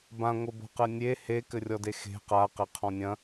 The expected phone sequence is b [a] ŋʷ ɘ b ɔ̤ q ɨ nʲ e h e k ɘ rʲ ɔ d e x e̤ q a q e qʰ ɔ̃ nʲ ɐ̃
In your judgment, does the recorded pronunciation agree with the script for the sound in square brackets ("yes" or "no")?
no